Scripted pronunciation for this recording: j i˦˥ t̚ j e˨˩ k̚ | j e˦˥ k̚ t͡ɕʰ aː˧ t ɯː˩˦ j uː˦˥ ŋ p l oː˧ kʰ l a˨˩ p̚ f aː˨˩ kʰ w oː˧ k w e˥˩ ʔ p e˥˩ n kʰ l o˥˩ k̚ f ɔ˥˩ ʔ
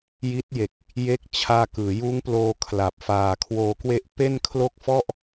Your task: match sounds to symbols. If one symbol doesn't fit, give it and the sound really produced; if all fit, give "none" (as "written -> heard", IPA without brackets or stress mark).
t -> k